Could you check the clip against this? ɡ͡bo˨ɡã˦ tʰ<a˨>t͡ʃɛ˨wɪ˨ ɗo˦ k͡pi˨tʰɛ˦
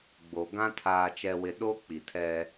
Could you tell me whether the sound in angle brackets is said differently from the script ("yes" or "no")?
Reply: yes